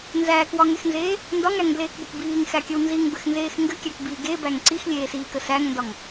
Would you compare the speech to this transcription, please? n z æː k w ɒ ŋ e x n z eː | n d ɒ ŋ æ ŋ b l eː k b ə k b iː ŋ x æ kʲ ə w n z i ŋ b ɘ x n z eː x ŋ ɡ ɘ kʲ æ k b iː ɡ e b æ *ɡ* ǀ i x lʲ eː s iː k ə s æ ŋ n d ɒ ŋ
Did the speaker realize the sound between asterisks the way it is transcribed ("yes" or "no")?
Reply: no